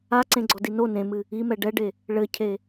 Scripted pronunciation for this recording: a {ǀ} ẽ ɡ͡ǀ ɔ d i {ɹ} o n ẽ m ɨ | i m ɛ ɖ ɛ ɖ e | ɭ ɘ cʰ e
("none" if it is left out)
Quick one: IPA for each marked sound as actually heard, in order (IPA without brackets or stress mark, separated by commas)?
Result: ǀ, n